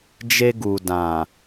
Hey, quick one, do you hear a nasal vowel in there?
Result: yes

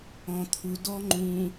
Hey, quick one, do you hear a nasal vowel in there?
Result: yes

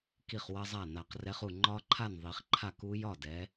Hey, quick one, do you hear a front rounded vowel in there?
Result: no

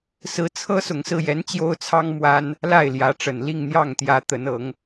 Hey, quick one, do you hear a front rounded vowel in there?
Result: no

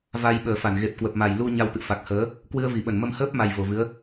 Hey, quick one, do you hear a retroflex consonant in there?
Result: no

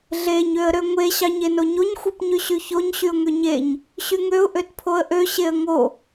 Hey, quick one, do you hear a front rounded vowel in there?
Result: yes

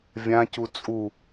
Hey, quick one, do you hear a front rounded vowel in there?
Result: no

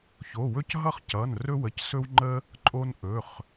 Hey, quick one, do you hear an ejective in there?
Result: yes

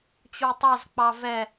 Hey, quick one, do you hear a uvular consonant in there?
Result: no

